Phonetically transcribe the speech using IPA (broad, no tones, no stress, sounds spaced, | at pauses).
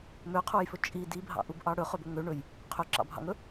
m ø qʰ u j f ɵ t͡ʃʼ i d i bʱ ɑ̰ ʔ u b ʔ ɑ ɽ ɵ χ ɵ b ɵ ŋ ø ɳ ɵ j | qʰ ø ǁ ɑ̰ bʱ ɑ̰ ŋ ɵ